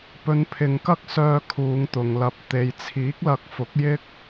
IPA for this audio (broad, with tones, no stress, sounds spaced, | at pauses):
p ɵ˨˧ n pʰ ɪ˨ ŋ k ɐ˥ k̚ s œː˧ kʰ uː˨˧ ŋ t̪ ʊ˨ ŋ l ɐ˧ p̚ t̪ e˨ j t͡sʰ iː˨˥ k̚ l ɐ˨˥ k̚ f ʊ˨˥ k̚ j ɪ˥ k̚